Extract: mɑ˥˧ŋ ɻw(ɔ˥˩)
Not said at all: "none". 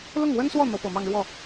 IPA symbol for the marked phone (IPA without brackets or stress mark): ɔ˥˩